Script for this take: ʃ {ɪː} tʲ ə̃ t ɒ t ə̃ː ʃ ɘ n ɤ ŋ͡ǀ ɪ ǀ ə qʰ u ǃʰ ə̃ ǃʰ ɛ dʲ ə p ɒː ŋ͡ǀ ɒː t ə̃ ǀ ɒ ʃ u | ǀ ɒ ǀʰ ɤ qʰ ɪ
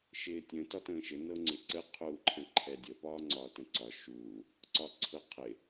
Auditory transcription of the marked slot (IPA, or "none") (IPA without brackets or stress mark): ɪː